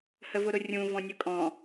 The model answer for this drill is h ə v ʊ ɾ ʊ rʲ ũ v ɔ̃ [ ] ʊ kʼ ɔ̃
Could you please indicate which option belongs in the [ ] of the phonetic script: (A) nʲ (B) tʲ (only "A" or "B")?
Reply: A